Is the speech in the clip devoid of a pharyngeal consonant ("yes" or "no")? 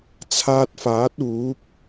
yes